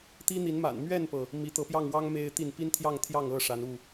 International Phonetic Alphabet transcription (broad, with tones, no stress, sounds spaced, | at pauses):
t̪ i˦ n̪ i˨˦ n m a̰˨˩ n m ɥ ɛ˥˨ n p ɤ˩ | m i˨˦ t̪ ɤ˨˦ p j ɑ˥˨ ŋ w ɑ˦ ŋ m e˦ ɪ̯ t̪ i˥˨ n p i˦ n t̪ʰ j ɑ˥˨ ŋ t̪ʰ j ɑ˥˨ ŋ ɤ˥˨ ʂ a˨˦ n u˥˨